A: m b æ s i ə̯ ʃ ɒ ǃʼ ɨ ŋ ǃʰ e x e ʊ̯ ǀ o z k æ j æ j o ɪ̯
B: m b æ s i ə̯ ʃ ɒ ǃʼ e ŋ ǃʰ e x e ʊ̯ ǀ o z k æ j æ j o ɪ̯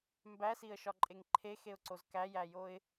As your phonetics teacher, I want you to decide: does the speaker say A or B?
B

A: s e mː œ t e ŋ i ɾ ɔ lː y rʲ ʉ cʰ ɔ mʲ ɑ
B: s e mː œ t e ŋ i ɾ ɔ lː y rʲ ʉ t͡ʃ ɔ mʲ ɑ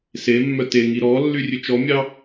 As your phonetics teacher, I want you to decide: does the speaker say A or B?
B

